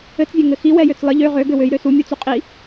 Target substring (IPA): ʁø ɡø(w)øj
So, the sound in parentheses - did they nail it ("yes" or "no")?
yes